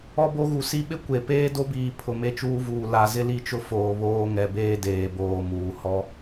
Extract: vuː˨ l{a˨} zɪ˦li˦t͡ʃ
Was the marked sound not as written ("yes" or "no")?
no